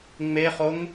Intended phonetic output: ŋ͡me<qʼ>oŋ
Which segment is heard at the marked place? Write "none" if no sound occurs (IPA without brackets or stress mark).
χ